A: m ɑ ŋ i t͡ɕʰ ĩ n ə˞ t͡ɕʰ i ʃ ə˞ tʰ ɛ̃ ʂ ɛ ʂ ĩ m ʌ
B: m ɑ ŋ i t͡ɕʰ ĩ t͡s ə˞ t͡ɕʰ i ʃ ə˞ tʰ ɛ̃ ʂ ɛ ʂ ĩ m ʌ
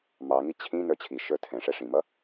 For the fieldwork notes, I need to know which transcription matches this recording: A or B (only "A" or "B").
A